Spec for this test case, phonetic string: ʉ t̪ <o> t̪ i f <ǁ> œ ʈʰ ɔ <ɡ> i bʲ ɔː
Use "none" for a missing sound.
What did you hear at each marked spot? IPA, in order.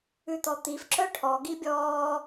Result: ɔ, ǁ, ɡ

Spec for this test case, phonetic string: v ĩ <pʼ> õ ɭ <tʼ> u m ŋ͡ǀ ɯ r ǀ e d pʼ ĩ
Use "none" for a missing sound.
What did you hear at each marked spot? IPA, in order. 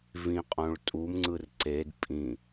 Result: qʼ, tʼ

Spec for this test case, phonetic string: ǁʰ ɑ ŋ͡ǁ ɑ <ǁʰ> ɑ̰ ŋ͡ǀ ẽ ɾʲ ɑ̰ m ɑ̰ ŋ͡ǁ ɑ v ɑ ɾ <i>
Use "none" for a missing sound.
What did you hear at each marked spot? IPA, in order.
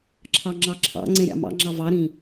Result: ǁʰ, ĩ

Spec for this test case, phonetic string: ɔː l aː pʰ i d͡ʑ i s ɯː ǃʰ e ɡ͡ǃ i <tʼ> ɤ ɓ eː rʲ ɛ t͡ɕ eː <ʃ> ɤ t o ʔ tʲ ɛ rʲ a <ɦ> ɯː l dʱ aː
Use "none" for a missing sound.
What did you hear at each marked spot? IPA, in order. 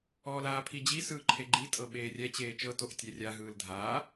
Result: tʼ, t͡ʃ, ɦ

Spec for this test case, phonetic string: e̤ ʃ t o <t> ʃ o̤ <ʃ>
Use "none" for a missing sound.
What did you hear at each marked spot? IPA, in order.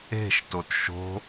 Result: t, none

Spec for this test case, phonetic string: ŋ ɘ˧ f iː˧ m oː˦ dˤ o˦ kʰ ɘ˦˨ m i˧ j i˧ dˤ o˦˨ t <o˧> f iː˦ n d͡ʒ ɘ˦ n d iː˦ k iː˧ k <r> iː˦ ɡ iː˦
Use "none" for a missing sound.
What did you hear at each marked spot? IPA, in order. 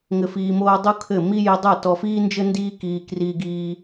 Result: ɔ˧, r

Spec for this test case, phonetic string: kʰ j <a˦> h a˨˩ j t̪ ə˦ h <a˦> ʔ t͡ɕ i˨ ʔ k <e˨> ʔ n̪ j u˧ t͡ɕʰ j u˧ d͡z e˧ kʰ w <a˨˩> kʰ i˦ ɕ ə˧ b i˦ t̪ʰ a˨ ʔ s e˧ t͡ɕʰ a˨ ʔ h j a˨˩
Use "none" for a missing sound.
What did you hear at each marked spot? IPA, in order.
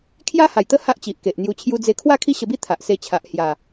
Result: a˦, a˦, e˨, a˥˧

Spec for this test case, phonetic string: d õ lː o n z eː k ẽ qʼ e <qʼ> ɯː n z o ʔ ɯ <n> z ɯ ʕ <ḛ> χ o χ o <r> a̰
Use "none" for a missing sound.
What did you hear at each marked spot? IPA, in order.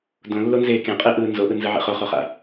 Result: ʔ, n, ḛ, χ

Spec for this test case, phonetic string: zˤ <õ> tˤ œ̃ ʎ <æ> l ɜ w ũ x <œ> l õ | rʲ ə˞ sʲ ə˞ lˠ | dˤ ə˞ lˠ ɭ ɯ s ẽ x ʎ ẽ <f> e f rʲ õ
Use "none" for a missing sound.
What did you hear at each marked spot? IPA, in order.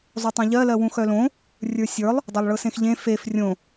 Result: o, ɜ, œ, f

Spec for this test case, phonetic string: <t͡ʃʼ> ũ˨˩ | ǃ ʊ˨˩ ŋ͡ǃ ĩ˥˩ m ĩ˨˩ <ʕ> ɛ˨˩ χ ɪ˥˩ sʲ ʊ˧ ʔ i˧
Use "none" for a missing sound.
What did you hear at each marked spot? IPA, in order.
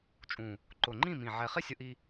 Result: t͡ʃʼ, ʕ

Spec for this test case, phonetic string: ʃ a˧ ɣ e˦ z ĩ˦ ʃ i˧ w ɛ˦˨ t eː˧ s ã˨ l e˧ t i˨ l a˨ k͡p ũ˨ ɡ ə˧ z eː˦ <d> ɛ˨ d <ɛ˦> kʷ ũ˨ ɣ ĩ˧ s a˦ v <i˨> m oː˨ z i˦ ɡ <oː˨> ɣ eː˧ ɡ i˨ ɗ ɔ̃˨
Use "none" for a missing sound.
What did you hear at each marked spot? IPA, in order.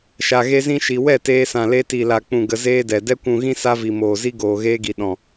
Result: d, ɛ˧, i˨, oː˨

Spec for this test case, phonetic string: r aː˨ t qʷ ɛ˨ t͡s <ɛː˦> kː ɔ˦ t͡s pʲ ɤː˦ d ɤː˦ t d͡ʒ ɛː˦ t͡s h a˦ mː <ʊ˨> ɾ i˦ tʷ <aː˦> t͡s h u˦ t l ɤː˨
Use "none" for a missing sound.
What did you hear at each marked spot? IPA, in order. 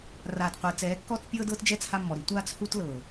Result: ɛː˨˦, ɔ˨, aː˦

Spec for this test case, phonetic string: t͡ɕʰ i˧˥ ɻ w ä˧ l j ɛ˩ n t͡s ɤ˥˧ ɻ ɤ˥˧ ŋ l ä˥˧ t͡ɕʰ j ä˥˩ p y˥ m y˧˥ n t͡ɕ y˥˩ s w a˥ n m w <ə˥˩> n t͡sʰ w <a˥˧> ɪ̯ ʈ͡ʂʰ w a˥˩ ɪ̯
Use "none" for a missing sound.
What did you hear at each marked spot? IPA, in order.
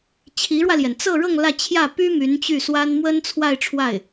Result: ə˥, a˥˧

